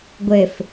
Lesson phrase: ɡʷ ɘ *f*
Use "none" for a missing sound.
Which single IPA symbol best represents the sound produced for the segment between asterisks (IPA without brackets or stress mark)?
f